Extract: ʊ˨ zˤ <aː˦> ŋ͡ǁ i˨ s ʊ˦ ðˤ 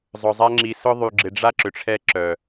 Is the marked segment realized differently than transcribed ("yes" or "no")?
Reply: yes